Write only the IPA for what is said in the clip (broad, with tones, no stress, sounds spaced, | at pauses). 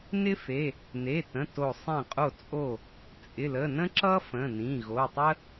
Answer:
n ɪ˥ f e˩˧˩ | n e˩˧˩ t ə̃˩˧˩ t o˧˩ sˤ ẽ˧˩ qʼ o˧˩ t͡sʼ o˧˩ | t͡sʼ ɪ˩˧˩ l ə˩˧˩ n ə̃˥ ǁ ʌ˥ f ə̃˩˧˩ n ĩ˩˧˩ ɣ o˩˧˩ tˤ ə˥